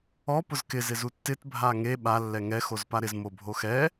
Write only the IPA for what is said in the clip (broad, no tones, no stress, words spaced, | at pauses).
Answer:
ɔ pʊzkɪ zɪzutːɪt bʱaŋe ɓa lːɛŋɛ xozpaɾɪz mobʱoxɛ